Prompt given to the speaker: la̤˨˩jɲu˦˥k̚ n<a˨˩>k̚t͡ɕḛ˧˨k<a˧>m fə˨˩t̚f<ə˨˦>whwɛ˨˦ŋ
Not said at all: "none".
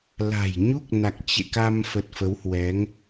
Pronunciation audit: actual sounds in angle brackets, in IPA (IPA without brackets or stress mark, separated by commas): a˨˩, a˧, ə˨˦